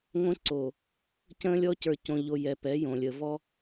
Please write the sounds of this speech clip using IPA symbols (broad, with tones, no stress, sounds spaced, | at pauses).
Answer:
ŋʷ ə̃˦ ǀ o˨ | c ə̃˦ lʲ ɔ˦ c ə˞˨ c õ˨ ʎ o˨ j ɛ˨ p ɛ˨˦ j õ˨ lʲ ə˨ v ɔ˦